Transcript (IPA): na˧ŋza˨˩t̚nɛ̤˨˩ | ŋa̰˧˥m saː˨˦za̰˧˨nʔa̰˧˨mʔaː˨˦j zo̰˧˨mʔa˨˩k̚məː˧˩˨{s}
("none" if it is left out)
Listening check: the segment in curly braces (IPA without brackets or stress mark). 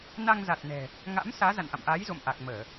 none